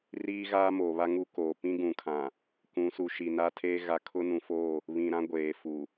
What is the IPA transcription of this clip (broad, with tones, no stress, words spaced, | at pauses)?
riː˦ɣaː˦mo˨ βa˦ŋu˦koː˨ pĩ˦ɡũ˨kʰã˨ | kũ˨˦ su˨ ʃi˨naː˦tʰeː˦ ɣa˦ kʰʊ˦nũ˨fo˦˨ | βĩ˨ɾã˦ ɡʷeː˨fu˨